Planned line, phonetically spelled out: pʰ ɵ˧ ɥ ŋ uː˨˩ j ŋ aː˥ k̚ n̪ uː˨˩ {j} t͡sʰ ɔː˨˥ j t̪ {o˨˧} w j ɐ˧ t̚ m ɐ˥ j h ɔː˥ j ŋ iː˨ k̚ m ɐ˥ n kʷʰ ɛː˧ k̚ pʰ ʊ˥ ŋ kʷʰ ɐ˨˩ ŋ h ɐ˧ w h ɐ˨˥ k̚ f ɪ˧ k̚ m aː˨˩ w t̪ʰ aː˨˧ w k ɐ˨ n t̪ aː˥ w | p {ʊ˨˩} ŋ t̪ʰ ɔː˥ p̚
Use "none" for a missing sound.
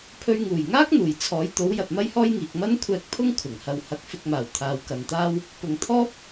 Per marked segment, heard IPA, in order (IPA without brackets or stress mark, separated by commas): j, o˨˥, ʊ˨˩